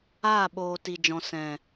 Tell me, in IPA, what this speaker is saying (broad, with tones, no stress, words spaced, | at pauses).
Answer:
aː˦˨ɓoː˨ ti˨d͡ʒɔ̃˨ sɛ̃˨